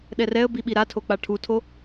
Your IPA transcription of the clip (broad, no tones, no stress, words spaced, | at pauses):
ɗɛrɛə̯bi ɓiɾatʰo k͡paʈʰutʰo